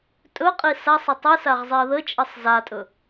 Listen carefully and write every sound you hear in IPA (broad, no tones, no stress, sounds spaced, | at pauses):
tʼ ɵ qʼ i s a sˤ ə tˤ ɨ s a ʁ zˤ i ə̯ ð ə t͡ʃʼ ə sˤ z a tʼ ɵ